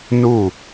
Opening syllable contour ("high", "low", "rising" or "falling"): falling